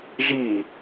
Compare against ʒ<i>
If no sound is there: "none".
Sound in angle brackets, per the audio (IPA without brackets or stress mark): i